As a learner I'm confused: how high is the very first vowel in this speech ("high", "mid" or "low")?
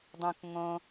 mid